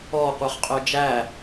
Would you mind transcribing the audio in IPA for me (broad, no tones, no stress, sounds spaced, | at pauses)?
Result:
ɔ qʷ œ χ qʼ œ d͡ʒ æ